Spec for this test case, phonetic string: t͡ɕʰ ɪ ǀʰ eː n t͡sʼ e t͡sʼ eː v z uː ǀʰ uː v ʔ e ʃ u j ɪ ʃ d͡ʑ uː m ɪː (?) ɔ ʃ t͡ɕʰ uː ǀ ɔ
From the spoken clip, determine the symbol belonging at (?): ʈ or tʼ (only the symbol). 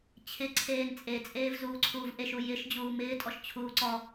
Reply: tʼ